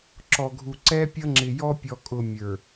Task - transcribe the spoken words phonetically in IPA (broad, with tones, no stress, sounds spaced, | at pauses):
ǁ ɔ˨ ɡʱ u˨ ǀ ɛ˦ pʲ ʌ˦ ŋ͡ǁ ɪ˨ j ɔ˦ pʲ ɔ˨ kʼ ʊ˨ mʲ ə˞˨